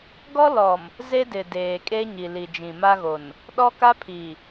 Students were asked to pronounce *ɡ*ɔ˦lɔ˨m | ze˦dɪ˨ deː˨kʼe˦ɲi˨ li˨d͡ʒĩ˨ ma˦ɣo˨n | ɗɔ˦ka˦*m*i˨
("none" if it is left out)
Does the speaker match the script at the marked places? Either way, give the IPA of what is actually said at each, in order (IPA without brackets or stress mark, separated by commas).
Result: ɡ, pʰ